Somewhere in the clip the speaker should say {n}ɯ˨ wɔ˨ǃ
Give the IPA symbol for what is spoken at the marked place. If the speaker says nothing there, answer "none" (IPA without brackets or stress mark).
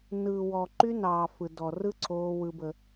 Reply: n